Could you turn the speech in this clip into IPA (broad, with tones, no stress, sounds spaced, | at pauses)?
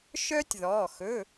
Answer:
ʃ œː˥ tʲ ð ɔː˩˧˩ x ɵ˩˧˩